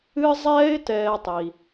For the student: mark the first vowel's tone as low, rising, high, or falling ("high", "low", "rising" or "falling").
high